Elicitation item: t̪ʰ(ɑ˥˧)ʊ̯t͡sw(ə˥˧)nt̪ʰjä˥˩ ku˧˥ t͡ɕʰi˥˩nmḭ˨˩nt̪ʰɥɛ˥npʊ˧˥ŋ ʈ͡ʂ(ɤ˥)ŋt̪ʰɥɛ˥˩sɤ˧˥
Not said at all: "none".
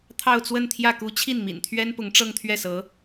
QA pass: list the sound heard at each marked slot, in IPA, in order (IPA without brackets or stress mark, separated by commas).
ɑ˥˧, ə˥˧, ɤ˥˧